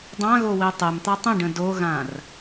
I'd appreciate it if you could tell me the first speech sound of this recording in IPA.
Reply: dˤ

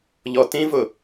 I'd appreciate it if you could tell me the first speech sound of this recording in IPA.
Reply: ʎ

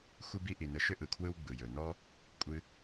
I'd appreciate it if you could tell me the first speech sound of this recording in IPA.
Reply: xʷ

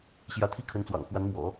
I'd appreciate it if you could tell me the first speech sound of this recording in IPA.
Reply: ɕ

